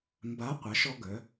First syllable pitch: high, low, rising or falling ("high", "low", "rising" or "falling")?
rising